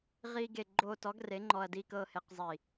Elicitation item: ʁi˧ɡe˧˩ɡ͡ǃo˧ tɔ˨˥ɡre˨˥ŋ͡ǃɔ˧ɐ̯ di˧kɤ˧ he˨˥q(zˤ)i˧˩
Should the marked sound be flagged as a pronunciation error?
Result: no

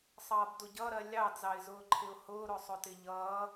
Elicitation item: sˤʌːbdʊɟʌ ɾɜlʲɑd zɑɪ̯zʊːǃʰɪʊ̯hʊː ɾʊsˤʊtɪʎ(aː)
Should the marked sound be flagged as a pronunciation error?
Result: yes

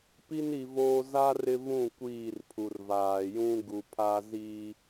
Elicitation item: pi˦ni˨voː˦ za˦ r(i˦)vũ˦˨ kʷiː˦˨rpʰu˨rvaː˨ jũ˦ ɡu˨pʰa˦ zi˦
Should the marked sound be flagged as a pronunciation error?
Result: yes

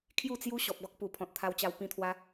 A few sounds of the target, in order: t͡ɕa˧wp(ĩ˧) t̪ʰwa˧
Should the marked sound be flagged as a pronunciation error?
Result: no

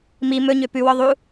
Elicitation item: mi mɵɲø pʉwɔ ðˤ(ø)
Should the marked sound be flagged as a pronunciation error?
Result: yes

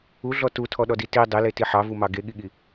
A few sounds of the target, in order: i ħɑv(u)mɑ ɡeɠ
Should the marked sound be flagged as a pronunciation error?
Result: no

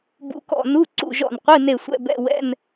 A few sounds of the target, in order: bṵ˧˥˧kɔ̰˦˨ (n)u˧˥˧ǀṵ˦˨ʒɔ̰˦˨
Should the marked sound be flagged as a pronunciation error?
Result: no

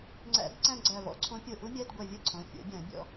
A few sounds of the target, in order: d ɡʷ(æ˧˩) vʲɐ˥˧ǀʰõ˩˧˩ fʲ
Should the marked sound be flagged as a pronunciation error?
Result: yes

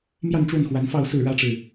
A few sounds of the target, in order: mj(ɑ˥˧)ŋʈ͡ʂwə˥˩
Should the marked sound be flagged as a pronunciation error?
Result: no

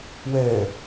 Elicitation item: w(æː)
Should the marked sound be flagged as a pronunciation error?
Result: yes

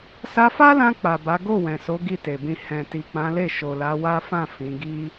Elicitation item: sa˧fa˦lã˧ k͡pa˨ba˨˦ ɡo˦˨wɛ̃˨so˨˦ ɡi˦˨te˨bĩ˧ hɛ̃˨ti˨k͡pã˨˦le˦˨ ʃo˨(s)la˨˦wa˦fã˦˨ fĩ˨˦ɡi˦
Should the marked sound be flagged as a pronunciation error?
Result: yes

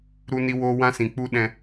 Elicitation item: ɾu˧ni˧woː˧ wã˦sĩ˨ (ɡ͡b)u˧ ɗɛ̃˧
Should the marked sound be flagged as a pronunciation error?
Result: yes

